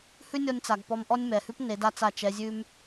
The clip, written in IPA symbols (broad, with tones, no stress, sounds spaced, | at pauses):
h ʉ˦ nʲ ɔ˧ nʲ t͡s a˨ ɡ p ɔ˧ m ʔ ɔ˦ nʲ m ɛ˨ h ʉ˦ p n e˨˦ d a˦ t͡s a˦˨ t͡ʃ ɛ˧ zʲ ʉ˦ m